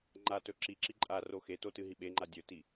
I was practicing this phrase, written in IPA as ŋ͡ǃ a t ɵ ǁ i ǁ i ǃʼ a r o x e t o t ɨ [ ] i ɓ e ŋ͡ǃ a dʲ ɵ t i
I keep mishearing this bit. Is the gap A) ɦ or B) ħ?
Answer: A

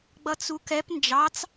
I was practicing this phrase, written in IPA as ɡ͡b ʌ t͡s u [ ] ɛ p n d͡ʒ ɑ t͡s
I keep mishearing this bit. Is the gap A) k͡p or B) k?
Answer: B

